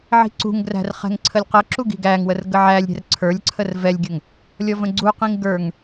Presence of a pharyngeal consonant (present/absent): present